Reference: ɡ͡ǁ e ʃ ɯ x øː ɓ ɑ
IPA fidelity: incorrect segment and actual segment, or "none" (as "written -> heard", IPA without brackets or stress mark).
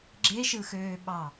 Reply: none